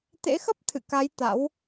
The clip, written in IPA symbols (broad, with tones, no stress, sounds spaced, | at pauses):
t̪ ḛ˧˥ x ə˦˥ p̚ t̪ʰ ɨ̰˧˨ k a˨˦ j t̪ a̰˧˥ w